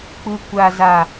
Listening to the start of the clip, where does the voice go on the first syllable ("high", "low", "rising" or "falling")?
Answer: low